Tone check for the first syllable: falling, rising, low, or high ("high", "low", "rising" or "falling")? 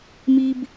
high